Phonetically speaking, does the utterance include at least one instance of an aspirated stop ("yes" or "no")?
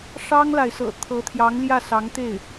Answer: yes